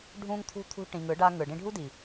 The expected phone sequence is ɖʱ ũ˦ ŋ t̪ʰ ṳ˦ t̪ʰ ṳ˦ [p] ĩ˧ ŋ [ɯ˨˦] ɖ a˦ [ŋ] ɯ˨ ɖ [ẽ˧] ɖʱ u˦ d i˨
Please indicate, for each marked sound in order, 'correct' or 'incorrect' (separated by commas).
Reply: incorrect, correct, correct, incorrect